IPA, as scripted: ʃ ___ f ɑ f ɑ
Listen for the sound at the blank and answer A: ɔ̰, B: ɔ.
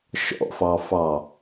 A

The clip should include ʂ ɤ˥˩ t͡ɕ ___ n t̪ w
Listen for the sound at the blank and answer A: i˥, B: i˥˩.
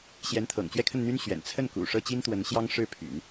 A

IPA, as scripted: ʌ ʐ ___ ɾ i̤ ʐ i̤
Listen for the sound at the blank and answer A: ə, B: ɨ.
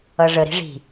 A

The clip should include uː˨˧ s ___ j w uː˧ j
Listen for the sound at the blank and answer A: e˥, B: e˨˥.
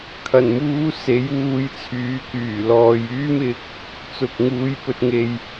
B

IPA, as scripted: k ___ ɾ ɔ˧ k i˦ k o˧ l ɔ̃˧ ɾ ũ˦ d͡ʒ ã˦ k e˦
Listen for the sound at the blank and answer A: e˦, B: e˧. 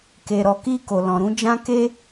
B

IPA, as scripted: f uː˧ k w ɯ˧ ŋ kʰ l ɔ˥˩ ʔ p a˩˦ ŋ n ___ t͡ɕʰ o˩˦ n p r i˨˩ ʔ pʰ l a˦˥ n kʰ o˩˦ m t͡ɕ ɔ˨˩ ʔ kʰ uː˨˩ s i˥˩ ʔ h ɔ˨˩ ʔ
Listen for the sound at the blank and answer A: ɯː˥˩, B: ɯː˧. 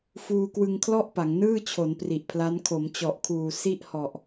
A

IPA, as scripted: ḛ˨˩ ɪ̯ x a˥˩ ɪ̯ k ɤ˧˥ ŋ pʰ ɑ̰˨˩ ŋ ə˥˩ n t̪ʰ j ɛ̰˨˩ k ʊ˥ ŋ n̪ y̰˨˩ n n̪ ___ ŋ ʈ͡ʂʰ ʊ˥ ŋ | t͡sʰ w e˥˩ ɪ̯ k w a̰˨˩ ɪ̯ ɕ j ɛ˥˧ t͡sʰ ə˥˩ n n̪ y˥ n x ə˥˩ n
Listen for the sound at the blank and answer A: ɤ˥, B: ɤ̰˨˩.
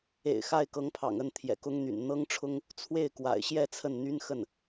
A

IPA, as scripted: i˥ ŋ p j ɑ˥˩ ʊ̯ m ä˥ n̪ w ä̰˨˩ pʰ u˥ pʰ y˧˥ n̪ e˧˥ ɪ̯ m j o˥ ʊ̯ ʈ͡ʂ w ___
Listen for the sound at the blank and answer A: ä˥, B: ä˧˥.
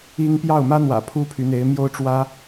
A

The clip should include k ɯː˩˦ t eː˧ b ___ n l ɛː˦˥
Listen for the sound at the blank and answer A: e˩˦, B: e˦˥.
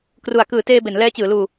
A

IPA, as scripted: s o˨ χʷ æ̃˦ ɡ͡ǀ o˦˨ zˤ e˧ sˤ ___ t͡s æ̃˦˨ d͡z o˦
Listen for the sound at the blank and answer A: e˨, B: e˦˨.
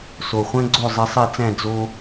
B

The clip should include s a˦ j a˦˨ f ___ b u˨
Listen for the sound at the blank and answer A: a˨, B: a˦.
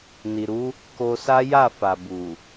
A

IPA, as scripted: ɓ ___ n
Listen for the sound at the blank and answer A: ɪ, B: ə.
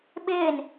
A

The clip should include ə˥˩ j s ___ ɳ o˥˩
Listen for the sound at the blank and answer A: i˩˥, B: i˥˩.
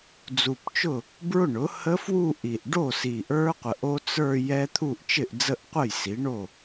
A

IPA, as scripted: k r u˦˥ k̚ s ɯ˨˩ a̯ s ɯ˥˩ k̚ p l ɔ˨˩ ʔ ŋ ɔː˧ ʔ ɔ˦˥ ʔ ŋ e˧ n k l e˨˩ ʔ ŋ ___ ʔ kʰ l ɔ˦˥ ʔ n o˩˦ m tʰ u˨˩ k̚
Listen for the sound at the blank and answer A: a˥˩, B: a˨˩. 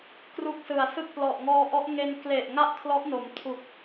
A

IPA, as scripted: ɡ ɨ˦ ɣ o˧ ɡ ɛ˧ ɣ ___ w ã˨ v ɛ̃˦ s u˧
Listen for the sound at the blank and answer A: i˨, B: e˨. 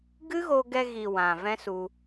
A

